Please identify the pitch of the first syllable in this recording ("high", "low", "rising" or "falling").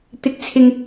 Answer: rising